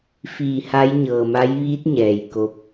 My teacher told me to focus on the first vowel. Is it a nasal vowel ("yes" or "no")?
no